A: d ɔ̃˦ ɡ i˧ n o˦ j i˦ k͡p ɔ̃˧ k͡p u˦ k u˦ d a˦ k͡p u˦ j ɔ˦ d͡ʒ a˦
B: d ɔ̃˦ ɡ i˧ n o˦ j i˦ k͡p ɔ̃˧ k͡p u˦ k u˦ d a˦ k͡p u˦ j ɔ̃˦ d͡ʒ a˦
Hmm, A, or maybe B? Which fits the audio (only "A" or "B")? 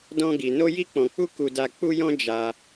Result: B